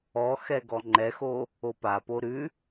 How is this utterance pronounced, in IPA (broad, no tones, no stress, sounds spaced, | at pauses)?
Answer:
ɔ x ɛ ɡ ɔ ŋ͡ǃ ɛ x o | o p a p o ɾ ʉ